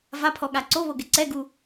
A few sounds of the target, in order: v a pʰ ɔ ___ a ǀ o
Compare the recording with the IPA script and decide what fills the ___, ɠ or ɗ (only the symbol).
ɠ